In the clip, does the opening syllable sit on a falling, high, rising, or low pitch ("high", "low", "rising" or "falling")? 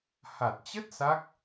low